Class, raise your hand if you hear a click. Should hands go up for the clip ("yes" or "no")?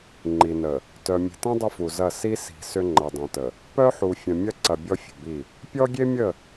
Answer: yes